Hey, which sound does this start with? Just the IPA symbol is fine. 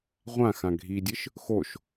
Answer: ʁʷ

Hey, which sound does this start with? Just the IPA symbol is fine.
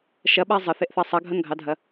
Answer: ʃ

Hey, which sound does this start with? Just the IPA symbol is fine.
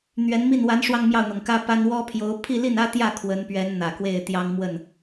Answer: n̪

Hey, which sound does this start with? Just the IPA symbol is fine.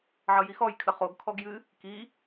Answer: ʕ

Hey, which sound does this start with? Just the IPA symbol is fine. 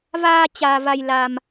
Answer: v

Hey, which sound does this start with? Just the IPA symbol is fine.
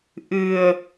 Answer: ʔ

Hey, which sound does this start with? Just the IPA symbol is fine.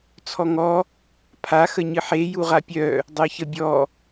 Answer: t͡sʰ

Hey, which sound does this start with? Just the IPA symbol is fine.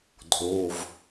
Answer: dʱ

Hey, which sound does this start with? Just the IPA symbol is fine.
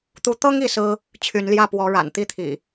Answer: t̪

